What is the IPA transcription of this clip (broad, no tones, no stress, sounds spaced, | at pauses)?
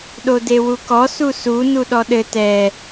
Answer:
ɗ o d e w u k ɔ s u s u n u ɗ ɔ ɗ ɘ t ɛ